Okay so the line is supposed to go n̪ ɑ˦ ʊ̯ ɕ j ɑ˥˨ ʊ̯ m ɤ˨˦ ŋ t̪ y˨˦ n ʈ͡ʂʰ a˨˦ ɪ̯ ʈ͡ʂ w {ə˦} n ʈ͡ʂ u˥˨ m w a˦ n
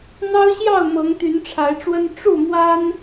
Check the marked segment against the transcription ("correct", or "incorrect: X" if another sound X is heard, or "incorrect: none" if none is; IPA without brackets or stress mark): correct